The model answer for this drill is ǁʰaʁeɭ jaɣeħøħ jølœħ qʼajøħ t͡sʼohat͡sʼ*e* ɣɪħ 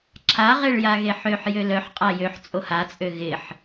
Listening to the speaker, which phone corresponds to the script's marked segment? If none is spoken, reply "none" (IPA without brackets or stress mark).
ø